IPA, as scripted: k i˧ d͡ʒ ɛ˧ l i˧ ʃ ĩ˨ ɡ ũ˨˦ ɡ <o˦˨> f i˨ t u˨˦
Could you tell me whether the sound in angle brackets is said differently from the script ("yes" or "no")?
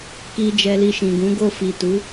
no